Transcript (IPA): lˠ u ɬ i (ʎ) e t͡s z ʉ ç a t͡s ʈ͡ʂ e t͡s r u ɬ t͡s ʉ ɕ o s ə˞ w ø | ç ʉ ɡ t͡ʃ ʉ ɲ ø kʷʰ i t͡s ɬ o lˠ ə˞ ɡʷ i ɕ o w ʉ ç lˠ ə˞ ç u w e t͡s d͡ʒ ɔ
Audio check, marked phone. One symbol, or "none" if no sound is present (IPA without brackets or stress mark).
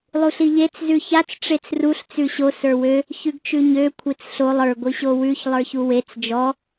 ʎ